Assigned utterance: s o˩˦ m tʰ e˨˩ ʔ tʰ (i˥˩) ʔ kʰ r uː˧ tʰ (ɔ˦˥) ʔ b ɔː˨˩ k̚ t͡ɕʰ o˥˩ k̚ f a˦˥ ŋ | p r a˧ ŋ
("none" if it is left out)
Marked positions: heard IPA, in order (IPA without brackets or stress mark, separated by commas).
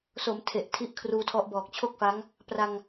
i˦˥, ɔ˦˥